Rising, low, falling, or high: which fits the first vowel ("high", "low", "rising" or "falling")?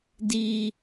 high